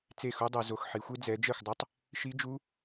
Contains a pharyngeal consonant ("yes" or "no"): yes